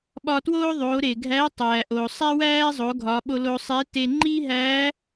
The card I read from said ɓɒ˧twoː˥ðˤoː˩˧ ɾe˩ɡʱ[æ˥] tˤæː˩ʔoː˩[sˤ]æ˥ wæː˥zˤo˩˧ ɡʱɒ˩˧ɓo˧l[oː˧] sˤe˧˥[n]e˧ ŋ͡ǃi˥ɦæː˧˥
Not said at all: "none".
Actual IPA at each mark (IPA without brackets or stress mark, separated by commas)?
æ˧˥, sˤ, oː˧, t